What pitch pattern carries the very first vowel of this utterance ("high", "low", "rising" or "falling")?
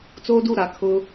high